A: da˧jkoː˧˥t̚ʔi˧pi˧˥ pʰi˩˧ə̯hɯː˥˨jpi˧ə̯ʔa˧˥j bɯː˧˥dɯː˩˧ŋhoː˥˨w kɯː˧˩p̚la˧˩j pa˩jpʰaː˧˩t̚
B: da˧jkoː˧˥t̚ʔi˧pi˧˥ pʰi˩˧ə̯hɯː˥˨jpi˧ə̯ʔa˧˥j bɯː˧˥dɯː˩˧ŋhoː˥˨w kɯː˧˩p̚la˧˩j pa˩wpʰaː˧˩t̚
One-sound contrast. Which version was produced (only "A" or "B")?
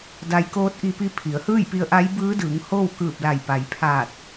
A